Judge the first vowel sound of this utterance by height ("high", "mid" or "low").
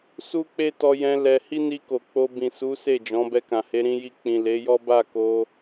high